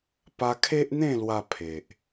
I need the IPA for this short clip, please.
p a˧ kʰ e˦ ʔ n̪ ẽ˥˧ l w a˧ pʰ e˨ ʔ

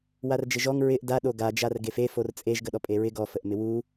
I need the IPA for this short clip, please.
w a r d͡ʒ ɪ ʒ ɔ ŋ ɹ ɪ ʔ d a ɗ o ɡ a d͡ʒ a r ɡ e f e f o r t͡sʼ e ʒ ɡ ə ɗ ɔ pʼ e ɹ ɪ ɡ ɔ f ə ʔ m ɪ w u

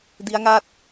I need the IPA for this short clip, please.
d i˦˥ a̯ ŋ a˥˩ t̚

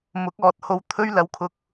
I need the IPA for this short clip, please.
m ʊ˨˥ k̚ ɔː˨ t̚ h o˧ w t̪ʰ ɵ˥ ɥ l ɐ˨ w kʰ ʊ˨ k̚

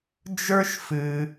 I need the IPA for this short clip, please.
d͡ʒ ə˞˦ ʃ f ɨ˧

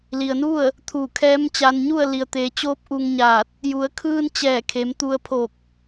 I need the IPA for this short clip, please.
l i˩ ə̯ n u˥˨ ə̯ | t̪ʰ uː˧˩ kʰ ɛː˧˥ m t͡ɕ a˧ n ɲ u˥˨ ə̯ l i˩ ə̯ t̪ eː˩˧ t͡ɕ oː˧˥ p̚ ʔ u˧ ŋ ɲ aː˧˩ t̚ | j u˩˧ ə̯ kʰ ɯː˧ n t͡ɕ ɛː˧˩ kʰ e˩˧ m t̪ u˧ ə̯ pʰ o˧˩ k̚

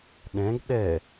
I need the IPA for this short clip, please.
ɗ ɛ̃ ɡ ɗ ɛ

